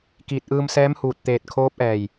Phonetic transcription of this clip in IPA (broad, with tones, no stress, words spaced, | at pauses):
kiː˧˩t̚ʔɯː˧msɛː˧˥mhuː˧˩t̚ t̪eː˧˩t̚ kʰoː˧˥p̚ʔɛː˧˩j